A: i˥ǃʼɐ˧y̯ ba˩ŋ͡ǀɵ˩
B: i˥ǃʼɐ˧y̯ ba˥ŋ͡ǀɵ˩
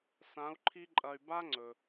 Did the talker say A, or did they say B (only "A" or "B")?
B